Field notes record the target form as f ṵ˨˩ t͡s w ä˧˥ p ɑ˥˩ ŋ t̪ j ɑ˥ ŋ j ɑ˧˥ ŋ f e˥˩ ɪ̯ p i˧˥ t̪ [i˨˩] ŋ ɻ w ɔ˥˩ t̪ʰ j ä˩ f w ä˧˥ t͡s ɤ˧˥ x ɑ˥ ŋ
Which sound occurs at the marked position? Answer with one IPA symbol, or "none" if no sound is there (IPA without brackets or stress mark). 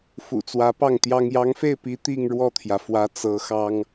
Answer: i˥˧